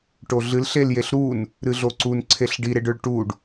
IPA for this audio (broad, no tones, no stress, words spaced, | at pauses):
ʈoɮɨl ɬeljeɬɾun | ɾɨɮoǀun ǀʰeɬɖi ɾeɖɵɭʈuɖ